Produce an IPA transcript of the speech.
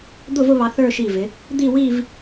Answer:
d̪ ʊ˥˧ v ʊ˥˧ β ɑ˧ θ ə˞˥˧ ʃ i˧˩ v ɪ˩˧ | d̪ i˥˧ w i˥˧ v

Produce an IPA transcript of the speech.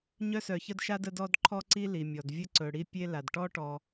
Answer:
ɲ œ˦ s œ˨ ç ə˦ d ʃ a˦ d ə˦ d ɔ˦ d ǃʰ ɔ˦ ǀ i˦ l i˩ mʲ ɔ˩ d vʲ ə˦ ǀ ɵ˨ ɽ i˦ pʲ e˦ l a˩ d ʈ ɔ˥ ʈ ɔ˨

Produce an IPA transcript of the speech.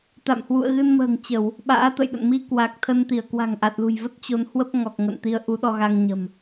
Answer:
t̪ a̰˧˨ m h w ṵ˧˨ ə̯ ɣ ɨ˧ n m ə̤ː˨˩ ŋ t͡ɕ ə˧˩˨ w | ɓ a̰ː˧˥ t̪ ə̰˧˨ j ɗ ə̰˧˨ n m i˧ k w a˨˩ k̚ t̪ʰ ə˧ n t̪ i˧˩ ə̯ k w a̤˨˩ ŋ ʔ a˨˩ t̚ l ṳ˨˩ j v ə˦˥ t̚ t͡ɕ o˨˦ n h w ə˦˥ p̚ ŋ ɔ˨˩ k̚ ŋ ə̰˧˨ n t̪ i˧ ə̯ ʔ u˨˦ ɗ ɔ˧ ɣ a˧ ŋ ɲ ə̤˨˩ m

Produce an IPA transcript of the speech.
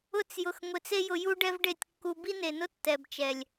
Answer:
ʊ˦ t͡s j ʊ˧ x ŋʷ e˧ t͡s e˦ j ʊ˧ j u˦ ɖ ɛ˦ v ɖ e˦˨ tʲ kː u˧ b i˦ n e˨ n ʊ˦ tː ɛ˨ b t͡ʃ ɛ˨ lʲ

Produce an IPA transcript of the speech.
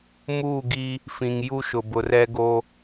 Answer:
m uː˦˨ ɡ i˦ | f ĩ˨ ŋ j u˦ ʃ ʊ˨ b ʊ˨ r ɛ˦ ɡ o˦

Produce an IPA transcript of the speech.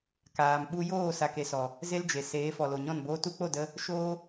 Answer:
k aː˨ m ɓ u˧ j oː˦˨ s a˨ k e˨ s ɔ˨ | z e˦ l d͡ʒ e˨ s eː˨˦ f ɔ˨ l o˨ ɲ ɔ̃˦˨ n b oː˧ t u˧ k͡p o˦˨ d ə˧ | ʃ oː˦

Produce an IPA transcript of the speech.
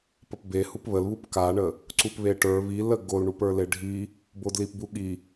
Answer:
p ə p b e h u p β ə l β u p k a ɳ ə | ǀ u p β e ʈ ə˞ β i l ə ɡ o l ɳ u p ə˞ l e ɖʱ i | b o d l i p b u ɠ i

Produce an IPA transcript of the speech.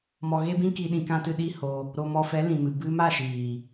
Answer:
m ɔ˧ ɣ e˦ b ĩ˦ k i˧ ɗ ĩ˧ k ã˦ t ɨ˧ ɗ i˦ h o˧ | ɾ o˧ m ɔ˧ f ɛ˨˦ l ĩ˨ m ɨ˨ b ɨ˧ m a˦˨ ʃ iː˨

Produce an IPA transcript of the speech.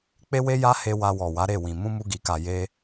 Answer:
k͡p e˦ w e˦ j a˦ h e˧ w a˧ w ɔ˨ w a˨˦ ɾ e˦˨ w ĩ˨ m ũ˧ m u˧ ɡ i˨ k a˨ j e˧

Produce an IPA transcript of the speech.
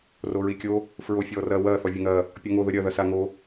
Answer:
r o ɹ i kʲ o | f ɹ o fʲ ɔː r ɐː w ɐː θ ɔ vʲ ɐ ŋ ɐː | pʲ ɔ ŋ o ð ə ɾʲ ɐ ð ɐ s a ŋ o

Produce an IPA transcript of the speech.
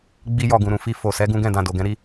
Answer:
ɡ͡b i˦ j ɔ˦˨ ɡ ũ˨ ɾ ũ˨ f i˧ f o˨ s ɛ˨˦ ɡ ũ˦ ɡ ɛ̃˦˨ d ã˨ d o˨ ɡ ɛ̃˨˦ ɾ i˧

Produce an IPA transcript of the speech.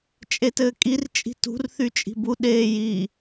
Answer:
t͡ʃʼ e t ɘː kʼ i r t͡ʃʼ i̤ t ṳ r θ y t͡ʃʼ i̤ b u ɗ eː j i

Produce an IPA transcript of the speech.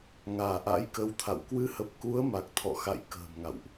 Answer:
ŋ aː˧˩ ʔ a̰˧˥ j k ə˧ w t̪ʰ a̰˧˨ w k w ɨ˨˦ h ə˨˩ p̚ k u˨˦ ə̯ m a˨˩ k̚ t̪ʰ ɔ̰˧˨ x a̰˧˨ j k ə̤ː˨˩ m ŋ a̰˧˨ w ʔ

